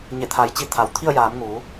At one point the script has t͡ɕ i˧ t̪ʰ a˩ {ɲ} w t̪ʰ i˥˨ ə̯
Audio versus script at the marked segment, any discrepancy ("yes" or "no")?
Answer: yes